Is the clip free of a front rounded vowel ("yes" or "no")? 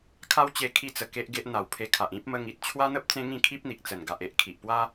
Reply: yes